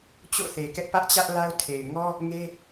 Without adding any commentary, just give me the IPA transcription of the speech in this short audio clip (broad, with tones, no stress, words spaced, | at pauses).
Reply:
t͡ɕo̰˦˨θe˨kɛ˦ʔ pä˦ʔt͡ɕä˦ʔla˦ʊ̯ tʰe˨ɪ̯ŋɔ˦ | ŋe˦